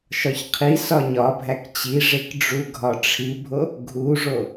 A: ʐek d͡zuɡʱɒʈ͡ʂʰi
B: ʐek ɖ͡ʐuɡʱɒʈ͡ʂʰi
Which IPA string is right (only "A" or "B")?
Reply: B